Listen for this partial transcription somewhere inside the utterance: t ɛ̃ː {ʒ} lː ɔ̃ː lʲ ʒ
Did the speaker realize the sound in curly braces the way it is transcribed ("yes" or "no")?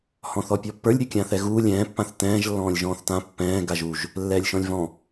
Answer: yes